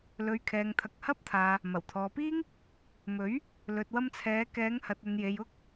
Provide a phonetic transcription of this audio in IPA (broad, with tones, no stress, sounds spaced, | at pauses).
l ɵ˨ ɥ kʰ ɛː˨ ŋ t̪ʰ ɐ˨ k̚ h ɐ˥ p̚ t̪ʰ aː˨ | m ɐ˨˩ w t̪ʰ ɔː˨ p iː˥ ŋ | m ɵ˨˥ ɥ | l ɵ˨ t̚ w ɐ˧ m t͡sʰ ɛː˨˧ k ɛː˨˧ ŋ h ɐ˨ t̚ ɵ˨ n j e˨ j ʊ˥ k̚